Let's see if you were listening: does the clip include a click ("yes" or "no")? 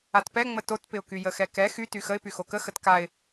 no